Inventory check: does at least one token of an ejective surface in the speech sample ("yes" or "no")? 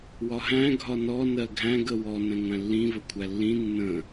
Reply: no